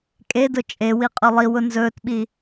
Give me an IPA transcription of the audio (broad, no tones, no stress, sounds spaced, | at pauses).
kʼ e d ʊ t͡ʃʼ e w i qʼ ɵ lˠ i w ʊ n z ɵː t ɓ i